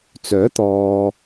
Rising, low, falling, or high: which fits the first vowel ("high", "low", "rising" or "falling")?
rising